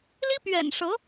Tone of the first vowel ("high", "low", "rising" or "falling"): high